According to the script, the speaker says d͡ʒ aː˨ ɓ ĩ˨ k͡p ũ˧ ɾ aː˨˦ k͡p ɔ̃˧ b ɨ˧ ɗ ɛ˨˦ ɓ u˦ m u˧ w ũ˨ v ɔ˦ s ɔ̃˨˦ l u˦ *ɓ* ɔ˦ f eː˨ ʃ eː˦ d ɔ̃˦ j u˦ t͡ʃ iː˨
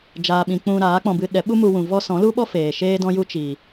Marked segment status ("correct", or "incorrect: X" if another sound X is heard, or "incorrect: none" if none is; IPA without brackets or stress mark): correct